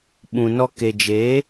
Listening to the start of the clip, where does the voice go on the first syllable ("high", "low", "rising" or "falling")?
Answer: low